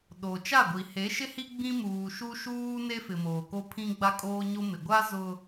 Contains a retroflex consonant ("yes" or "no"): no